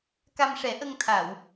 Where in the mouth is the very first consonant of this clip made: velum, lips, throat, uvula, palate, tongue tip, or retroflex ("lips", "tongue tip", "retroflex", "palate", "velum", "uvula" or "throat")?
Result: velum